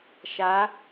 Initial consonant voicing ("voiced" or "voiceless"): voiceless